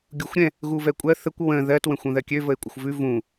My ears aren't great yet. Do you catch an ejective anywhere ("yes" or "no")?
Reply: yes